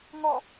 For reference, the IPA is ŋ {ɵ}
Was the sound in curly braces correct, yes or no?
no